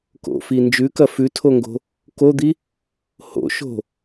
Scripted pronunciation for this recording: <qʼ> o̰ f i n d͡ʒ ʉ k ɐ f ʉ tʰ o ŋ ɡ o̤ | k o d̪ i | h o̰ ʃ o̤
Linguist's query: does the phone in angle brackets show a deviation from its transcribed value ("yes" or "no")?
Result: yes